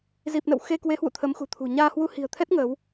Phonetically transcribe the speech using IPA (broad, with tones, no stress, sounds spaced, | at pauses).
z i˨˩ p̚ n ə̰˧˨ w x e˧ k w e˨˦ h w ṵ˧˨ t̪ʰ ə˨˦ m x ṳ˨˩ t̪ʰ ṳ˨˩ ɲ aː˧ h w u˧ h i̤˨˩ ə̯ t̪ʰ ɛ˦˥ t̚ ŋ əː˨˦ w